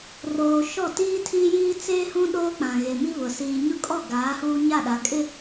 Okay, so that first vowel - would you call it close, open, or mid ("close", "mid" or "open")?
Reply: mid